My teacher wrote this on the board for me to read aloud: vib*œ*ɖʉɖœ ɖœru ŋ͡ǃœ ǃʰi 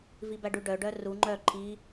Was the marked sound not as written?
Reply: yes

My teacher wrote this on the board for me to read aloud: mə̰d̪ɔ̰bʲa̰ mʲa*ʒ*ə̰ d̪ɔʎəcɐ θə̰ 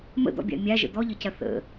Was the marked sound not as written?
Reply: no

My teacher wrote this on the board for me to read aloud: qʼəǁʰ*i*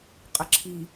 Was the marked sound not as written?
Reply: no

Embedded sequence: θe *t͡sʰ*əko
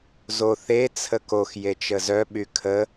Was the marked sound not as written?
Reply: no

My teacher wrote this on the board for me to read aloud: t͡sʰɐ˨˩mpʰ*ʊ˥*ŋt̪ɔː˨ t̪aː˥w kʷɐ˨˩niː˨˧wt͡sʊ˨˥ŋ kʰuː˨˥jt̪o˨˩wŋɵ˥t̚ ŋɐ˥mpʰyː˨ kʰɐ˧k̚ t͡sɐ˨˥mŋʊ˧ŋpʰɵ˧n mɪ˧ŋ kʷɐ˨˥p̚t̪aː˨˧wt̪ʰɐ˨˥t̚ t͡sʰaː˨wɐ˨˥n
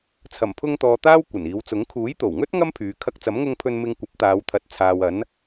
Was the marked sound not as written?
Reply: yes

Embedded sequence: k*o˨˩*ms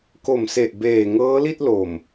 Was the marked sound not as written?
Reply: no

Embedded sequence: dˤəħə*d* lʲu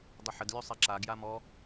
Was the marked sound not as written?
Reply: no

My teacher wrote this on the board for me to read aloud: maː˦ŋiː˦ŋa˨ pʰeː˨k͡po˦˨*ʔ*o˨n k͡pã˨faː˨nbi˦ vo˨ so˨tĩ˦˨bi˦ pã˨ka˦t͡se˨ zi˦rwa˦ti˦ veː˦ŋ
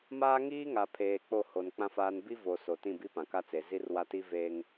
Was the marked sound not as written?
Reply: yes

